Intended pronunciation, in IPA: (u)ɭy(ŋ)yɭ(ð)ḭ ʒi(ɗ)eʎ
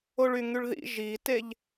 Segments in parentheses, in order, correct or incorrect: incorrect: o, correct, correct, incorrect: t

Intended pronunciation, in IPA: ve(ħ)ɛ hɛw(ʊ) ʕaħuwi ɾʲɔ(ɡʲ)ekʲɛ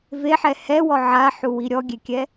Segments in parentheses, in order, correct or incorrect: correct, incorrect: ɔ, correct

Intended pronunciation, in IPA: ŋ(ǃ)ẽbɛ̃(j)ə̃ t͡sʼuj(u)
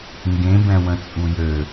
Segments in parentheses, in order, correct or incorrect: incorrect: ɡ, incorrect: w, incorrect: ø

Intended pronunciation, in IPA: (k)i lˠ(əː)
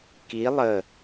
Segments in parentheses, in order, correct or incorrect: correct, correct

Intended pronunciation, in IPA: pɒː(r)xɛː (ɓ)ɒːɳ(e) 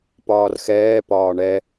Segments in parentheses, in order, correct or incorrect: correct, incorrect: p, incorrect: ɛ

